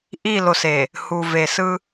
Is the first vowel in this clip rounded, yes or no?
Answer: no